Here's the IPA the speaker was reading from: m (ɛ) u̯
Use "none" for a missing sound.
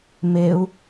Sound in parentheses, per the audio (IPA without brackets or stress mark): e